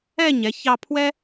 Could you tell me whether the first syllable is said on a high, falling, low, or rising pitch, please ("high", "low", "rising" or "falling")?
falling